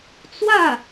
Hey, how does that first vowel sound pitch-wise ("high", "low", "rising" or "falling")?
falling